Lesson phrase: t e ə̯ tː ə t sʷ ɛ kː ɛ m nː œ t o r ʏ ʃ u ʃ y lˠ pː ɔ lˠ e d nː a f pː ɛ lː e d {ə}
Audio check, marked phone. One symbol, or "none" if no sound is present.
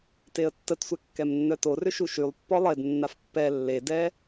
ɛ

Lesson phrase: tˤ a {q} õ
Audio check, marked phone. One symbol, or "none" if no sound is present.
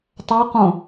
q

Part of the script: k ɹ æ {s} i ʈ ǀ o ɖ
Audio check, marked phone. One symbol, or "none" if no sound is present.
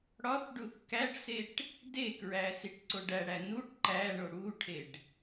s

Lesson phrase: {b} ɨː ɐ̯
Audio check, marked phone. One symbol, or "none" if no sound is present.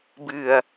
b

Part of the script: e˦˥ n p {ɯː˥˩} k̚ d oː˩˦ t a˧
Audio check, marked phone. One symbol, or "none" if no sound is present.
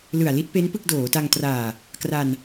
ɯ˥˩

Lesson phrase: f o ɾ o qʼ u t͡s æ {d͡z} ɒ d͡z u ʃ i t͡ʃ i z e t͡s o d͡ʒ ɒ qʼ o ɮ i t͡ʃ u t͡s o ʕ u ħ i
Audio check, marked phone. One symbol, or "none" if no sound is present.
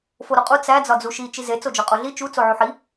d͡z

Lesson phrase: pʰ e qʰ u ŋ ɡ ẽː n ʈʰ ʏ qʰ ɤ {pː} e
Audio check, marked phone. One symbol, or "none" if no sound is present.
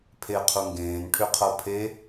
pʰ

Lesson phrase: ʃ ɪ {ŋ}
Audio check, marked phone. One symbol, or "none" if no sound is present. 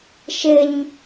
ɲ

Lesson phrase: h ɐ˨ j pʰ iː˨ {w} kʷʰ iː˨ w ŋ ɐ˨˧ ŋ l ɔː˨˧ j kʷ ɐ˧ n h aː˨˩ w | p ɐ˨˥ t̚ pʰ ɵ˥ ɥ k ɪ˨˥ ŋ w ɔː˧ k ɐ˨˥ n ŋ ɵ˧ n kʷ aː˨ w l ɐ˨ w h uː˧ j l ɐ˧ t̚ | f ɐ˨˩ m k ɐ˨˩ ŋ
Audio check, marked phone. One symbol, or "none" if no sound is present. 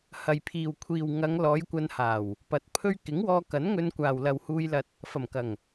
w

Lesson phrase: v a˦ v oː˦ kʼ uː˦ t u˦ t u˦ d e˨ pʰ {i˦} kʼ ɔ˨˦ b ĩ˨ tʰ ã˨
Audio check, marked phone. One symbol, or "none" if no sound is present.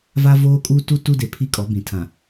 i˦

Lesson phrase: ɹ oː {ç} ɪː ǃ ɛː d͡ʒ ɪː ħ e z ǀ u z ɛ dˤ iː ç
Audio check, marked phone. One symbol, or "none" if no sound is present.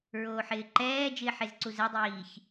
ħ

